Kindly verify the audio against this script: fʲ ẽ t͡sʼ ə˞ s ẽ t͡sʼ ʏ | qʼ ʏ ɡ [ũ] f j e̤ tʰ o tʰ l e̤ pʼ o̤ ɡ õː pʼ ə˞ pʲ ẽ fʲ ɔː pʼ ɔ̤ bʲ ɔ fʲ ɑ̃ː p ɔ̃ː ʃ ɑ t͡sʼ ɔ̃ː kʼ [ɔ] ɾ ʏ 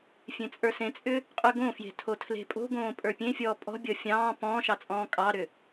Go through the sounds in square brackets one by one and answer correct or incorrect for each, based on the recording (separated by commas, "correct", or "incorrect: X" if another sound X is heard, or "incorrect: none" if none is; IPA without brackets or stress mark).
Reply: incorrect: õ, incorrect: ɑ